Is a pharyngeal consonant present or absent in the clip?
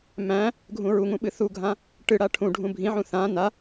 present